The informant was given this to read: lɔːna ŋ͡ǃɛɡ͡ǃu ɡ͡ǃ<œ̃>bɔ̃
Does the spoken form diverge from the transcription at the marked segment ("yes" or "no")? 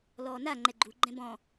yes